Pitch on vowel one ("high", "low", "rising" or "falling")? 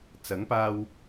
rising